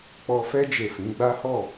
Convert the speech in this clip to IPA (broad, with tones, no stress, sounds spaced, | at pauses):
k͡p ɔ˧ f ɛ˦ d͡ʒ e˦˨ f ĩ˨˦ ɡ͡b a˦ h ɔ˦˨